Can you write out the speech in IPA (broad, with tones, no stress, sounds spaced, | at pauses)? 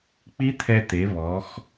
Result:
k͡p i˦˥ t̪ʰ ɛ˧ t̪ e˩˧ β ɔ˩˧ x